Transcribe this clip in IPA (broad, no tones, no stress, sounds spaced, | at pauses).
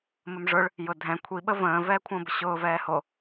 m ə m ʐ ʊ ɭ | j ʊ dʱ ɛ̃ kʷʰ i ɓ ə v ə̃ː v ɛː kʷʰ ə̃ː b ʊ ɕ ʊː v ɛː h o